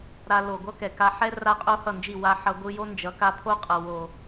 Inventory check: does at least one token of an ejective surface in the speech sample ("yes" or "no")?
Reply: yes